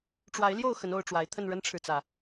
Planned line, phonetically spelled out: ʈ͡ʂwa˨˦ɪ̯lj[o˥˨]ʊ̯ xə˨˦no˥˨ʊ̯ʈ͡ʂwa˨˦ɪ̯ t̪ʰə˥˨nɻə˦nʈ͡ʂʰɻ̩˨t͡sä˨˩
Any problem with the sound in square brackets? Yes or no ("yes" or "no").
no